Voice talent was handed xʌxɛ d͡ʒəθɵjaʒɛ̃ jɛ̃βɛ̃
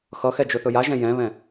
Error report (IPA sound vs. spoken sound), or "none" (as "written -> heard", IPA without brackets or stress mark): ə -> ɵ